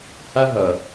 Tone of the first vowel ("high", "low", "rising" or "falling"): high